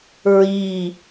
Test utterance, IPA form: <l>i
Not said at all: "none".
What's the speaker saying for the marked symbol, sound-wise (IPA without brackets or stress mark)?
ɹ